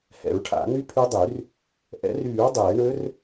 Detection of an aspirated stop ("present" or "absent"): present